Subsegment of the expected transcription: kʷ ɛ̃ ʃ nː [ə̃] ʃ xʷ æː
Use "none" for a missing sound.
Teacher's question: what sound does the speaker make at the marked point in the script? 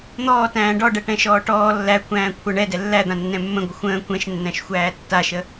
æ̃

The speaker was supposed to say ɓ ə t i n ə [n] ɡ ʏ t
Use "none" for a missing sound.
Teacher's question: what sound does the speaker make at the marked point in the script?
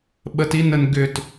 n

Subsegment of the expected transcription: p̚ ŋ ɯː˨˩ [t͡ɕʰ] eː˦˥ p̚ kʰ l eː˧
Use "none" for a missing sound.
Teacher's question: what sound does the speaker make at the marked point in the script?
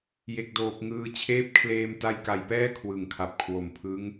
t͡ɕʰ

